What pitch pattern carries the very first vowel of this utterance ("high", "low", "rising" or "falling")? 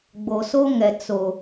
low